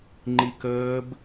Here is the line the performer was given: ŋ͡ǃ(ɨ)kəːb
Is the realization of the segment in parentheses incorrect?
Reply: yes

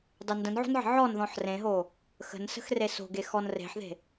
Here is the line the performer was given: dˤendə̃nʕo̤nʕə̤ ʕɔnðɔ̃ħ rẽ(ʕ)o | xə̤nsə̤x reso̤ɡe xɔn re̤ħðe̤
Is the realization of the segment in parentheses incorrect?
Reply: yes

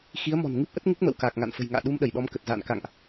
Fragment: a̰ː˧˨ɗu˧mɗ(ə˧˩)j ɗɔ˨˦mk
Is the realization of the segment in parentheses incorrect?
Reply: no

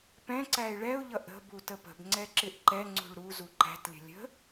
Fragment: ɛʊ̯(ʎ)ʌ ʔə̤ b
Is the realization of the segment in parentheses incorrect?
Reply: no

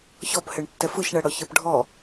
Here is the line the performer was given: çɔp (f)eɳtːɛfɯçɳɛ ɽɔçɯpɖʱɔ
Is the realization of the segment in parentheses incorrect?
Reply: yes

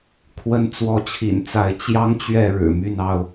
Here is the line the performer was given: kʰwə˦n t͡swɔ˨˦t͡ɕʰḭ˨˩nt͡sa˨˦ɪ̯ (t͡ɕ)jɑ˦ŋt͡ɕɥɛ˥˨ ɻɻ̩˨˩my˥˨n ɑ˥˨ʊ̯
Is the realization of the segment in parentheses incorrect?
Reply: no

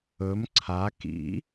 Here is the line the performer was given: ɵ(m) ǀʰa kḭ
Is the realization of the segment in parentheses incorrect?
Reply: no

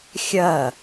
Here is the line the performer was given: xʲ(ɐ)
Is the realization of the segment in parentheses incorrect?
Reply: no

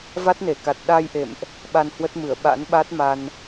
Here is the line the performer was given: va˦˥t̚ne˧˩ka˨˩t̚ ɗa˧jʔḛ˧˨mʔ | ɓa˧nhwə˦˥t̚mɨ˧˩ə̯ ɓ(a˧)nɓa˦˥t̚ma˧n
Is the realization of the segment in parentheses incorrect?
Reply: yes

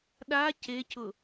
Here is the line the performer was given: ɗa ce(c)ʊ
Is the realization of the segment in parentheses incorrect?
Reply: no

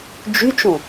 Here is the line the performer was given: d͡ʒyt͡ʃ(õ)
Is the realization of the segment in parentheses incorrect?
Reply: no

